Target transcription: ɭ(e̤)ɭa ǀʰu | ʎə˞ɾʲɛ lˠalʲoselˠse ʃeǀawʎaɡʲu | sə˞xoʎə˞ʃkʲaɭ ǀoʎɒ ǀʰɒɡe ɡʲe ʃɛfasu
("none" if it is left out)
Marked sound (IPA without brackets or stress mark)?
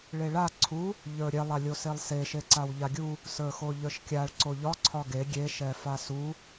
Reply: e